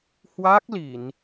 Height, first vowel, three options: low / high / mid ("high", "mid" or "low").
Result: low